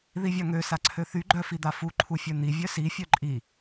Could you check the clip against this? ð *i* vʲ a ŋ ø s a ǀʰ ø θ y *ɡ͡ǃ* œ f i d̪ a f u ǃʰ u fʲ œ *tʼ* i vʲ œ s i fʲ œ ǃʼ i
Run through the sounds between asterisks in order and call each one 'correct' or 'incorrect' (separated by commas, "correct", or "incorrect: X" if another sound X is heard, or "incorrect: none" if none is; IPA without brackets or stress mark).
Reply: correct, correct, incorrect: n̪